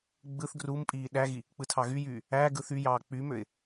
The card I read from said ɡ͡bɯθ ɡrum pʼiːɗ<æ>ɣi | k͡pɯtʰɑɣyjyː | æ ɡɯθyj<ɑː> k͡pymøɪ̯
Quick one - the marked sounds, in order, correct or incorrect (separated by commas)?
correct, correct